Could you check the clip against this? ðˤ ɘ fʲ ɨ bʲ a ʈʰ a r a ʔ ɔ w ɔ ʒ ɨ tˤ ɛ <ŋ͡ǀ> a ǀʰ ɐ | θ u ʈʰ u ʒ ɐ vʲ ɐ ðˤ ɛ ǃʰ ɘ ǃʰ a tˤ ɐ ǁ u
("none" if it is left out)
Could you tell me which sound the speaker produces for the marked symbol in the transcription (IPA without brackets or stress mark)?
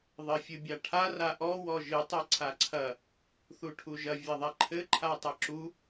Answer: ǀʰ